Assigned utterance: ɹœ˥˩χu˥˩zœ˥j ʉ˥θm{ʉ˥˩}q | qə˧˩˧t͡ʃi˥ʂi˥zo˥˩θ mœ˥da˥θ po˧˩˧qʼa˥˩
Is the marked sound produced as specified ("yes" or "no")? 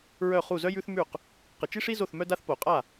yes